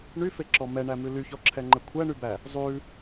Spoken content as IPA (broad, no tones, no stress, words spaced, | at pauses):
ɳyfeǁɔ mɛɳæmʉ lyçɔǁʰɛŋ͡ǃɛ kʷʰæɳybæ | zˤʉ